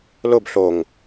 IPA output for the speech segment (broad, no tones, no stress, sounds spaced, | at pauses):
l ʊ b ɬ o ŋ